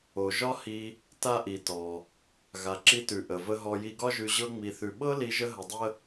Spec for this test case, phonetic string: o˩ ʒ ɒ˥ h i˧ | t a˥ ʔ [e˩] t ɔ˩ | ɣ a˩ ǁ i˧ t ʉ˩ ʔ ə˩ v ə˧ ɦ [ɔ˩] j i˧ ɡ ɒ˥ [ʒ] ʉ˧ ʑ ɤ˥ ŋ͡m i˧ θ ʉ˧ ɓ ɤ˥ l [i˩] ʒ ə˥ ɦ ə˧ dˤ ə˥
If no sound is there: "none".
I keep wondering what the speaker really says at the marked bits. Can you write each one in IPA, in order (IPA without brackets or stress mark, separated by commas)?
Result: i˩, ɔ˧, ʒ, i˧